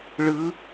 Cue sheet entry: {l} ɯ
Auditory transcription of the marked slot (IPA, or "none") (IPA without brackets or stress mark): ɭ